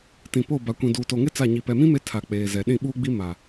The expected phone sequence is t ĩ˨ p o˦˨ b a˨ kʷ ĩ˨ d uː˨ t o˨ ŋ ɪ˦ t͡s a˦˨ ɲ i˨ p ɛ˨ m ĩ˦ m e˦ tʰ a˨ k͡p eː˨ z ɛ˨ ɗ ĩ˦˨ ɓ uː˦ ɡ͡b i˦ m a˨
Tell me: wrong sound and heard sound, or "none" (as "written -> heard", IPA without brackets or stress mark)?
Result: none